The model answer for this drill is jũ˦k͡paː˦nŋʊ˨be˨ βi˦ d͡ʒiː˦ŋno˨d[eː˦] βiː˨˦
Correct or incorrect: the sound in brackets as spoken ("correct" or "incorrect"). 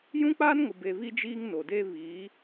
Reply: correct